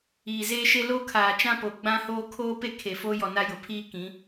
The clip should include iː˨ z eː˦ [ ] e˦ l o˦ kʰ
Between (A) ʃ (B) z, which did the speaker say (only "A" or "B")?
A